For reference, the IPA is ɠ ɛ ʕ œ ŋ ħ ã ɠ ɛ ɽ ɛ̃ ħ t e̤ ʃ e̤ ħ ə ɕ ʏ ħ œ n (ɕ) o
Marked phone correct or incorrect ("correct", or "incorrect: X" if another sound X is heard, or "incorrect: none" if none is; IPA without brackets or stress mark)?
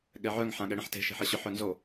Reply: incorrect: z